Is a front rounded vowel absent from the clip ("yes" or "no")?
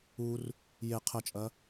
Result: yes